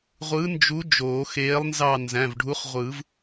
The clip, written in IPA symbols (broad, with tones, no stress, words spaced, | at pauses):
ʁʷɯ˨˥nd͡ʒu˨˥ d͡ʒoː˨˩˦xeː˨˥lˠnzɑ˦˨ nzæ̃˩˧˩vɖʱu˨˥χʁʷɯː˨˩˦v